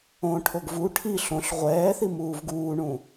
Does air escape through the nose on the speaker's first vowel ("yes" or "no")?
yes